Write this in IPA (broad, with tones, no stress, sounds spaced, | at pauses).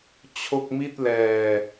t͡ɕʰ o˥˩ k̚ m i˥˩ t̚ l ɛː˨˩